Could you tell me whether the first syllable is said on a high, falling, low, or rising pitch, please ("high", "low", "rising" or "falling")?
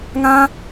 high